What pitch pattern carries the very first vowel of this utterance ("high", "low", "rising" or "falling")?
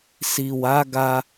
low